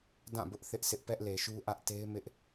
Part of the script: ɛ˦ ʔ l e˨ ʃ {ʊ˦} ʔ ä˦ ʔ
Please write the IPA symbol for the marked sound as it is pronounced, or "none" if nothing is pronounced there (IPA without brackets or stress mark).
u˦